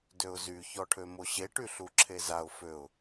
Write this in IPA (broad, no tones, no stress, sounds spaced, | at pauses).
d ø ʊ̯ z y ç ɔ ʈʰ ø m o ɕ e ʈ y ɬ u ǁʰ e z a ʊ̯ f ø ʊ̯